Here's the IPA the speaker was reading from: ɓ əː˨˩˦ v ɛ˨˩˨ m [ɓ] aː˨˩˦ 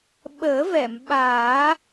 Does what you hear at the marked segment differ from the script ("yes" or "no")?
no